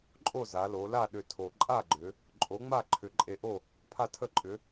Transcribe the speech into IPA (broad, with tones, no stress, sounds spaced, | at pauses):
ǃʼ o˥˨ z a˩˧ l o˩˧ l a˥˨ ɗ ʏ˧ tʰ o˨˩ ǃʼ a˥˨ ɡ͡ǃ ʏ˩˧ | ǃʼ o˨˥ ŋ͡m a˥˨ ǃʰ ʏ˨˩ ǃʼ e˧ ʔ o˥˨ | pʰ a˥˨ tʰ ə˥˨ ǃʼ ʏ˨˥